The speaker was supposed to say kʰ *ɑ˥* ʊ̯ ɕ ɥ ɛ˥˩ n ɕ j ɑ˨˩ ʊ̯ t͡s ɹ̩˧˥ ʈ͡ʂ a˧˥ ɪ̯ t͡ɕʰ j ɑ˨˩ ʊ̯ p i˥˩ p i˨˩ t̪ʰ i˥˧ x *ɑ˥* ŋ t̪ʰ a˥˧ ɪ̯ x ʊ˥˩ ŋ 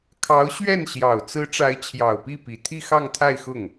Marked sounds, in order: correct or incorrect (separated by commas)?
incorrect, incorrect